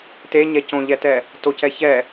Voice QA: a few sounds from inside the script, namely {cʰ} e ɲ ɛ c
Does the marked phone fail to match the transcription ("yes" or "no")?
yes